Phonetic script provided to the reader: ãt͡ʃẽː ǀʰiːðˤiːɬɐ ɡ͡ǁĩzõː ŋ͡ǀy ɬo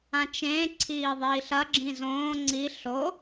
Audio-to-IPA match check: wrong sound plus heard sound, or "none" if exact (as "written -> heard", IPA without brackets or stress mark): y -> i